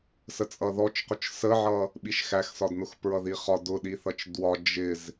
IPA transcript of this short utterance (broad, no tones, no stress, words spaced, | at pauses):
sət͡sʼʌðɔt͡ʃqʊt͡ʃ səʕʌ | ɓiʃxæxsɒdnʊx pɹʌðiχɒ dʊɗiθʌt͡ʃ dwɒ d͡ʒɪz